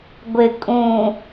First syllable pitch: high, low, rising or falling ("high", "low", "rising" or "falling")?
low